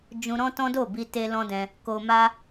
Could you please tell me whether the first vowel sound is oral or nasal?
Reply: nasal